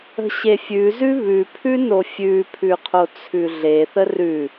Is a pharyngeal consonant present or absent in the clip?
absent